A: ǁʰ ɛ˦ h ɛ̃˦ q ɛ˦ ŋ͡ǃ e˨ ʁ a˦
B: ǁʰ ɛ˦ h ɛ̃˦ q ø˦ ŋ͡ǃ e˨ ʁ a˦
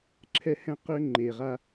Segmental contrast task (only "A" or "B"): B